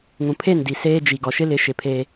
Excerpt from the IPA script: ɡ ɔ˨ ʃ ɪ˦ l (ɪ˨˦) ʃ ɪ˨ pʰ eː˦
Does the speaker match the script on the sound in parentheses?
yes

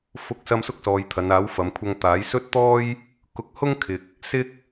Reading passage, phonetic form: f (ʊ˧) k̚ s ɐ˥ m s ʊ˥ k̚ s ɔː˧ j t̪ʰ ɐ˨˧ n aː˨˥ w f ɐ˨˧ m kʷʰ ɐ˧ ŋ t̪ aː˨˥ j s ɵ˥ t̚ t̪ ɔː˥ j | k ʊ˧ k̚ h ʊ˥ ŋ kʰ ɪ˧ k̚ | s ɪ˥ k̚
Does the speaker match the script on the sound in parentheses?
no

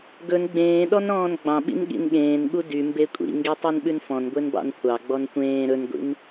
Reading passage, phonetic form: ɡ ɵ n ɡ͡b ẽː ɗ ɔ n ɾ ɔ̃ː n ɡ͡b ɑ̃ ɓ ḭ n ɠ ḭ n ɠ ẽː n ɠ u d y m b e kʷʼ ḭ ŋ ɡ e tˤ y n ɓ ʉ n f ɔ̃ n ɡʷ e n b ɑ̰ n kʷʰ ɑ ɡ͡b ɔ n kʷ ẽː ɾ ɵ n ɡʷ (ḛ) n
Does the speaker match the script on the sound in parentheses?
no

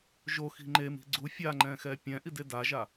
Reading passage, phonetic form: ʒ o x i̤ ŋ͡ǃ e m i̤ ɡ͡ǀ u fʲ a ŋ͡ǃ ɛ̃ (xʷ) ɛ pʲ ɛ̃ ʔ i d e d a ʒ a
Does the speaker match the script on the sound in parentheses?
no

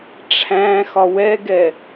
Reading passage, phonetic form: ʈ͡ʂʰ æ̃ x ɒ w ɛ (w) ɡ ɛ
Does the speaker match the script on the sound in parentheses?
no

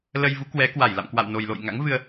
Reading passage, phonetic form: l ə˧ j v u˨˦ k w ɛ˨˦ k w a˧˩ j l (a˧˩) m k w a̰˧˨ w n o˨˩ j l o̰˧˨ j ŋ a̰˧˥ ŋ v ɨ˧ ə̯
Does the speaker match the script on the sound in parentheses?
no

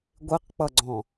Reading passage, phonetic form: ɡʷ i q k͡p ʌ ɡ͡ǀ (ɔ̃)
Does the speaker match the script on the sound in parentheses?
yes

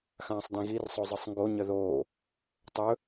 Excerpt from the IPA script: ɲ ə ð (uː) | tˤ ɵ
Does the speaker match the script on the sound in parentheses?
no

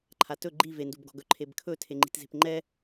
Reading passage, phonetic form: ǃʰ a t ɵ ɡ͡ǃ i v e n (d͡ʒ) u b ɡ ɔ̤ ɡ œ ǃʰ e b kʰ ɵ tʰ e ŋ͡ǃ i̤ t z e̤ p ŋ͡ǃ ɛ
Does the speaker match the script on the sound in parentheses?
no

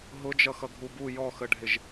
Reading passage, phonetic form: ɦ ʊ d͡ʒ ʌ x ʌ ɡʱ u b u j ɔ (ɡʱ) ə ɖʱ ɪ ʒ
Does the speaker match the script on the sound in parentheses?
no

